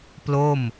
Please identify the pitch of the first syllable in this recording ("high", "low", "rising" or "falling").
falling